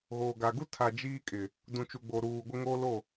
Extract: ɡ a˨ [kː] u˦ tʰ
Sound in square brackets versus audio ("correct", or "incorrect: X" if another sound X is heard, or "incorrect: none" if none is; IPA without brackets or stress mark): incorrect: ɡ